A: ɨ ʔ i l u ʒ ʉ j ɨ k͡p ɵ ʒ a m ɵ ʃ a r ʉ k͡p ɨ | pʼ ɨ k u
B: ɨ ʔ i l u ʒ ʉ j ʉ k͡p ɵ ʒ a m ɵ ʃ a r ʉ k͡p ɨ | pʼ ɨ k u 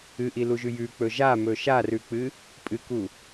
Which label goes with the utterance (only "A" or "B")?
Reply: B